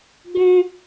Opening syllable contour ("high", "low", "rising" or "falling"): high